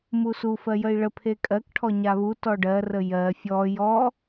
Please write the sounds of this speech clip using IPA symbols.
m u s u f ɜ j ə i̯ ɭ ə pʰ e kʼ ɜ k ʈʰ ɔ ɲ a β u t ɔ ɖ ɜ r ə j ɜ fʲ ɔ j ɔ

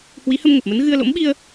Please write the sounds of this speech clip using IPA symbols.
h w i˨˦ h ə˧ m ŋ ə˨˩ p̚ m ə˨˦ n ɣ ɨ˧ ə̯ l o̰˧˥ m ɓ i˧ ə̯

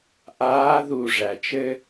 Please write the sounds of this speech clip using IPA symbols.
ʔ aː˧˥ ð u˦˨ ʐ æ˨ t͡ʃ ɘ˥

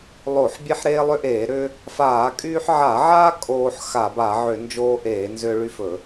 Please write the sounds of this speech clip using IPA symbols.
lˠ o˧˩˧ ħ bʲ e˦ ħ ɾ eː˦ lˠ ʏ˦ ʔ eː˧˩˧ ɾ ʏː˦ | f aː˧˩˧ kʼ yː˦ ħ ʕ a˧˩˧ ʕ aː˦ kʼ oː˦ ħ x a˧˩˧ b a˧˩˧ ʕ ʏ˧˩˧ n d͡ʒ oː˦ ʔ eː˧˩˧ n z ʏː˦ ɭ y˦ f ɵ˧˩˧

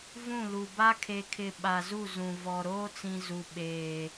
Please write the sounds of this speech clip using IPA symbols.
v ũ˦˨ l u˨ b a˦ kʰ e˨ kʰ ɪ˨ ɓ a˨ z u˦˨ z ũ˨ v ɔ˨ ɾ oː˦ t͡s ĩ˨ z u˨ ɓ eː˨

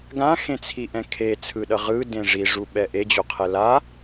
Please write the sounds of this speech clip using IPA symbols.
ɡ ã x ẽ t͡sʰ i ʔ ɛ̃ kʰ e t͡sʰ ɯ ɗ ʌ ʁ ɯ d ẽ ʐ i ʐ u ɓ ɛ ʔ e d͡ʑ o qʰ ɛ l a

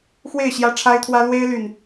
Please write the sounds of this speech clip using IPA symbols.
x w e˥˨ ɪ̯ ɕ j ä˦ ʈ͡ʂʰ a˦ ɪ̯ t̪ʰ w ä˦ l w e˦ ɪ̯ l y˨˩ n

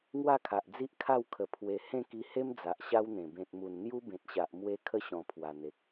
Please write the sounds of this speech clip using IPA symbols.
ŋ w a˥˧ kʰ a˨ ʔ d͡z i˦ ʔ kʰ a˥˧ w kʰ ə˨˩ pʰ w e˨˩ h ẽ˥˧ k i˧ h e˦ m d͡z a˨ ʔ ɕ a˦ w n̪ ẽ˨˩ b ẽ˨ t̚ m u˨˩ n n̪ j u˦ b ẽ˨ t̚ ɕ a˨ ʔ m w e˧ kʰ ə˦ ɕ ɔ̃˨˩ pʰ w a˨˩ n̪ e˨ k̚

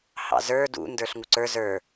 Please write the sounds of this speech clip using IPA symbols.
h ɑ̰ z ə˞ d ṵ n d ə˞ ɬ ŋ u ǀ ə˞ z ə˞

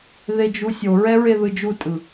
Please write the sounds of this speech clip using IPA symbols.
ð e d͡ʒ u sʲ o ɹ ɛ ɹ e ð ɯ d͡ʒ u tʼ ɯ

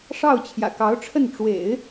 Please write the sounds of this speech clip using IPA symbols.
ʂ ɑ˥˩ ʊ̯ t͡ɕʰ j ä̰˨˩ k ɑ˧˥ ʊ̯ ʈ͡ʂʰ ə˥˩ n ʈ͡ʂ w ḛ˨˩˦ ɪ̯

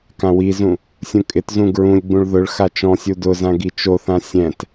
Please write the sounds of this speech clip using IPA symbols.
k ã w i z ũ | sʲ ũ kʼ ɪ t z ũ ɡ ɹ ũ lʲ ɡ͡b ũ ɭ ð ʊ ɭ x a t͡ʃ ɔ̃ sʲ u d ʊ z ã ɡ i t͡ʃ o θ ã sʲ ɛ̃ t

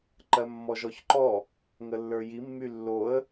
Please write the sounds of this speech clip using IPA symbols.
ǃ ɜ mː ɔ ʒ ɔ ç ǃ ɔ | ŋ ə lː ə˞ j i mː y lː o ə̯

